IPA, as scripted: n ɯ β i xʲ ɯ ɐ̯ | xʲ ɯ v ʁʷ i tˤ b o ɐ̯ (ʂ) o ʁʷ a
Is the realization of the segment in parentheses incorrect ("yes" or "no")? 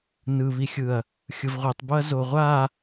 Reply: yes